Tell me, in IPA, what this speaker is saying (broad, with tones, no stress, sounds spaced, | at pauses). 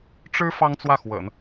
ʈ͡ʂ ɻ̩˥ f ɑ˥ ŋ t͡s w ä˥˩ x w ə̰˨˩˦ n